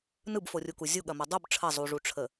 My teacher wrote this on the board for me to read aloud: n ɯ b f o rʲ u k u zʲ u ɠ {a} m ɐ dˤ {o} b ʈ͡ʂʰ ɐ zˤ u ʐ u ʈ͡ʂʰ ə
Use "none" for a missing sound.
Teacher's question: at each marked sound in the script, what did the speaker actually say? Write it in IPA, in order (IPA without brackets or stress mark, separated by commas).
ɐ, u